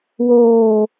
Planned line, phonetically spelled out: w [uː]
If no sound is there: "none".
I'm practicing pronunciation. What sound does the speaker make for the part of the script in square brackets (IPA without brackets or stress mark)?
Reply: oː